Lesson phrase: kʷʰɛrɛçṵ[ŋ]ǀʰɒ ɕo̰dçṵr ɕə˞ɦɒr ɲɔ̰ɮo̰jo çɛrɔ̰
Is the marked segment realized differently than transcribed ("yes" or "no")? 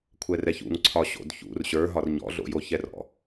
no